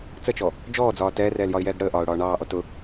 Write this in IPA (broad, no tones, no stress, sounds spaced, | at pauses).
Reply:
t͡s ə t͡ʃ ɔ | d͡ʒ ɔː d͡z ɒː t ɛː r ɛː l j ɒ ɪ̯ j ɛː ɡ ɽ əː ʔ ɒː ʊ̯ ɽ ɒː ɳ ɑː ʔ ɔ t ʊ